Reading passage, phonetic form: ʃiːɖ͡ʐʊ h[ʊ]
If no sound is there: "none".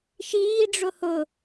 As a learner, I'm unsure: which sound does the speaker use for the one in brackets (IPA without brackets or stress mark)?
ʊ